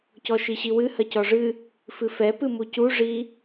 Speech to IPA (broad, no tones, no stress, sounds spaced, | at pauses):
c ɔ ʃ i ɕ i w ɨ h ɐ c ɔ ʐ ɨ | f ɨ f ɛ p ɨ m u c u ʐ i